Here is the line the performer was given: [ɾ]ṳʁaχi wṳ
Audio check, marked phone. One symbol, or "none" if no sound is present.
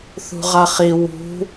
θ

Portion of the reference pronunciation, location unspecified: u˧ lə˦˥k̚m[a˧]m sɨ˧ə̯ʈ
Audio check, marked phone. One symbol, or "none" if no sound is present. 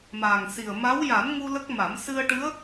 a˨˩˦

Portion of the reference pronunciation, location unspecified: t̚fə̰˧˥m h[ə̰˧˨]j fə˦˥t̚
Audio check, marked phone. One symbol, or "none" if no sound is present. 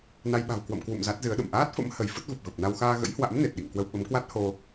ə˧˩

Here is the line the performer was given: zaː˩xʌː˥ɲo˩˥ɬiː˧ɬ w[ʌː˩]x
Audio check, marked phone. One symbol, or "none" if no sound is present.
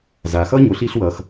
ʌː˩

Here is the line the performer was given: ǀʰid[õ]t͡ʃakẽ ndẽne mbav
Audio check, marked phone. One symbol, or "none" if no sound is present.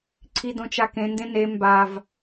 õ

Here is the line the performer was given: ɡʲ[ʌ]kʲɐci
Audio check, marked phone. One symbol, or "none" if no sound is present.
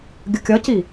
ə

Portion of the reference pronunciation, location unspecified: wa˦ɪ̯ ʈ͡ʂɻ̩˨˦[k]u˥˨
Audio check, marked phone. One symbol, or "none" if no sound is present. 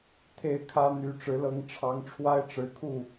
kʰ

